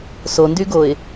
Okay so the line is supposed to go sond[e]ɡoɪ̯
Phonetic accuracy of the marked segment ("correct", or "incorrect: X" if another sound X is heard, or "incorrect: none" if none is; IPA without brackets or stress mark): incorrect: y